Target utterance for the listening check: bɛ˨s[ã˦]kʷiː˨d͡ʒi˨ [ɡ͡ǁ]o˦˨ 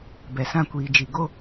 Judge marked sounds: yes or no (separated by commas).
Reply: no, no